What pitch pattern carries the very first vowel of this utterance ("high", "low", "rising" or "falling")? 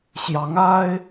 rising